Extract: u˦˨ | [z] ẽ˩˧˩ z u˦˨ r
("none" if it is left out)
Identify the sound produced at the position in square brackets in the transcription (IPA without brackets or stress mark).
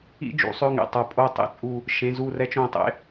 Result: ʃ